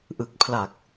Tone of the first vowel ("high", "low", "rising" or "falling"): low